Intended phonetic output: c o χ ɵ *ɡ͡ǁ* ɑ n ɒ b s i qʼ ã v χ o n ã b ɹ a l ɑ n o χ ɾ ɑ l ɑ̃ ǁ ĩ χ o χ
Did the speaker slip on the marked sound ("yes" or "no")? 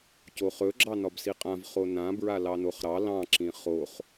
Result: no